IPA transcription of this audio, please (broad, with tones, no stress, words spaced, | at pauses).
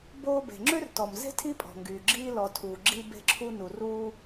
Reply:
boː˧ be̤˩ŋ͡ǁø˥rtɔ˩mze̤˥ tʰi˥pʼɔ̤˩ŋɡyː˩ ɡ͡ǁiː˧lɔ˩ tʰuː˩ ɡ͡ǁiː˧ be̤˧ǁʰu˧nu˩ruː˧